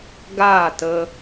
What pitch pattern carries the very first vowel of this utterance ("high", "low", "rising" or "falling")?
falling